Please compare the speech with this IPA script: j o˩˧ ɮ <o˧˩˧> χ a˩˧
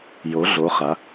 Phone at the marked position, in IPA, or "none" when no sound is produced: o˩˧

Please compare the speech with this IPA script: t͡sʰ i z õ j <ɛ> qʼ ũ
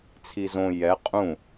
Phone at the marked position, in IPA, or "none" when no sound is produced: ɛ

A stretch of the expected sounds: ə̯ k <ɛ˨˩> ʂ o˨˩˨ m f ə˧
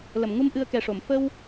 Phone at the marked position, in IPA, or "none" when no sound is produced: ɛ˨˩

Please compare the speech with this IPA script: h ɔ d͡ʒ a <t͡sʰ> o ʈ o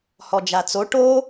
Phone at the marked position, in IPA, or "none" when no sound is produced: t͡s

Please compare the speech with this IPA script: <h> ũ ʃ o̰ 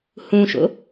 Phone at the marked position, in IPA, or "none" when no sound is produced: h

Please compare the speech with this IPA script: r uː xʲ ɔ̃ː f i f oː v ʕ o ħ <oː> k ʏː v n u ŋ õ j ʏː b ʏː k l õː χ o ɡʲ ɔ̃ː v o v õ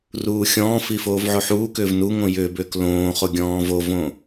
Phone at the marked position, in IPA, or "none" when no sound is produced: uː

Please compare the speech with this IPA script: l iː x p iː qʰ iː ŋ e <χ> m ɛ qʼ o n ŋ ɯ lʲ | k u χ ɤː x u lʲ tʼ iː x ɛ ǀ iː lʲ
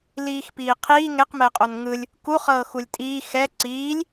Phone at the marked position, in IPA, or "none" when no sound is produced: q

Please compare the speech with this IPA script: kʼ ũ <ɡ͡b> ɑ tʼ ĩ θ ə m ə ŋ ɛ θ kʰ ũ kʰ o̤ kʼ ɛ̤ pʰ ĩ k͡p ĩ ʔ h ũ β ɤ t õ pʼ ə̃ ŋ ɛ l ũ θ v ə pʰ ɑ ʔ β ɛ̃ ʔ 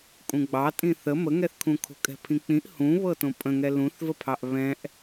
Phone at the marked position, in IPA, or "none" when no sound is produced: ɡ͡b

